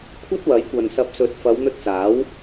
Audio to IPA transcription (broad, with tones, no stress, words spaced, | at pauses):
kʷʰɐ˥t̚wɐ˨˥jkʷɐ˨n sɐ˨˥p̚sɵ˨˥t̚ fɐ˨˧wn̪ɵ˧t̚t͡saː˨˥w